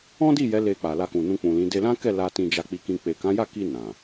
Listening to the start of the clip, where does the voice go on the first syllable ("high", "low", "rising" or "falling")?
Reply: high